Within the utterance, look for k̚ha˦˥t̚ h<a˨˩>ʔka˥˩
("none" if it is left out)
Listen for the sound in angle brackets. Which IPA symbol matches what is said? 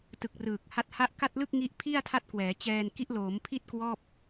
a˦˥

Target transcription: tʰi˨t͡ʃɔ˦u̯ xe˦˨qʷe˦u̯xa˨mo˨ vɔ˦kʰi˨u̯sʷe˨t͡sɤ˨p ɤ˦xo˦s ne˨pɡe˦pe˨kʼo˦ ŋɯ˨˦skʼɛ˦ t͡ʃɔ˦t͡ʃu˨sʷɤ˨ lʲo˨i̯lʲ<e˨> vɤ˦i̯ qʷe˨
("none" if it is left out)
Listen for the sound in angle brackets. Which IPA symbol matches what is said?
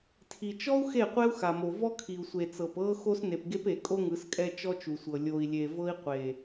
e˨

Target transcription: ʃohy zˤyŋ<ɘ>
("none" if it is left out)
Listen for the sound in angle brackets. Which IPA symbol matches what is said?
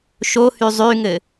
ɘ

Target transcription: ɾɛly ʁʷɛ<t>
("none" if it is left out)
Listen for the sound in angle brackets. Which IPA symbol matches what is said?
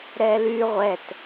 t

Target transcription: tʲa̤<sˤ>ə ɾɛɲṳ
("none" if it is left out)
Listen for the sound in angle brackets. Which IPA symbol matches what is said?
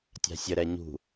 sʲ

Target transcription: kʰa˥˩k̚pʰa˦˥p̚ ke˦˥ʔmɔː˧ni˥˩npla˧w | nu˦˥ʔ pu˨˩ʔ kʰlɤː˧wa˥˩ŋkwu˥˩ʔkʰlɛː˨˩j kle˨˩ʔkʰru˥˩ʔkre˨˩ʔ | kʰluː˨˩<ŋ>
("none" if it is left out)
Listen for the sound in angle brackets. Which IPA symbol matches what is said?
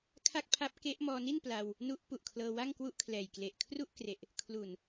n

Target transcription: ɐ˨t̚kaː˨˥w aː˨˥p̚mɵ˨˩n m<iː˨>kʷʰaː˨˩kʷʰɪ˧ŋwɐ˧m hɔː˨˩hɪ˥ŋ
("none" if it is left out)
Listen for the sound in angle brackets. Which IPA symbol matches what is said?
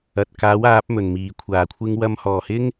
iː˨˩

